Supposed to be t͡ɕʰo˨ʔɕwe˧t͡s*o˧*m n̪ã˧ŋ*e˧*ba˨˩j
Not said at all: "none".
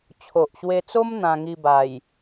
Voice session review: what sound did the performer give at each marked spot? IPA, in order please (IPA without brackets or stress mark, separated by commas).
o˦, i˧